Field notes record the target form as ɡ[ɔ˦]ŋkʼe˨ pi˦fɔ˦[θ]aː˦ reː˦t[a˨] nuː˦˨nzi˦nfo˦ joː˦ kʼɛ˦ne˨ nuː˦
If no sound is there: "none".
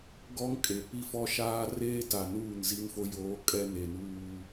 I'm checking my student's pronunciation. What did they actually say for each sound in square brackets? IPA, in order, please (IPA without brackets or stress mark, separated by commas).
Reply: ɔ˦, ʃ, a˨